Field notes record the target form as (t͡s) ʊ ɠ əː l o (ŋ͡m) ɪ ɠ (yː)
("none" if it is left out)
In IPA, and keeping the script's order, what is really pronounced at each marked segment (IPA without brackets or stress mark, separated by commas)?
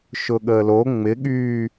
ʃ, ŋ͡m, yː